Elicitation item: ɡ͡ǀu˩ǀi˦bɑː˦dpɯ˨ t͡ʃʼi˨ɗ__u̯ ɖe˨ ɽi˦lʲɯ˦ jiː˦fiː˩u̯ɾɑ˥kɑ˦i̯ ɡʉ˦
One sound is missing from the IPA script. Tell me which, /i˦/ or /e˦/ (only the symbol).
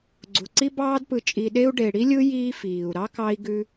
e˦